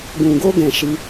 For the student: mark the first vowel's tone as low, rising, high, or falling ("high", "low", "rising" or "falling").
low